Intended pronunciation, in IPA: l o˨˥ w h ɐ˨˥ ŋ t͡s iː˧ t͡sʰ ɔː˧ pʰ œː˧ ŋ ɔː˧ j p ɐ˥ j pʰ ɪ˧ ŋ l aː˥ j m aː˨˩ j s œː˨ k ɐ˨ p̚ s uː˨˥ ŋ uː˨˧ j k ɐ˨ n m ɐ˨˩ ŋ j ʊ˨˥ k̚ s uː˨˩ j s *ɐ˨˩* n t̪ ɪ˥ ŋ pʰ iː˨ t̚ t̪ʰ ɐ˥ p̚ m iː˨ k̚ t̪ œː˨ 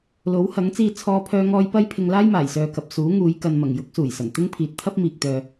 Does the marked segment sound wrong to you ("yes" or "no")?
no